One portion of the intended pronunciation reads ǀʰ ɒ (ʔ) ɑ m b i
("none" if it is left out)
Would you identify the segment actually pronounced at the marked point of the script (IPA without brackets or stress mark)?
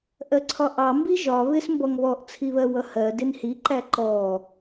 ʔ